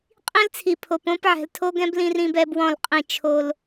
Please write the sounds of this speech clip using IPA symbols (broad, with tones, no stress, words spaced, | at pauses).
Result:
qʼĩ˦lt͡sʰi˨pʰo˨p õ˦p ʕɛ̤˨ltʰo˦ɡɛ̃˦b lĩ˦rĩ˦bɛ˦ bwɔ̃˦˨lqʼĩ˦˨ t͡ʃʰo˦l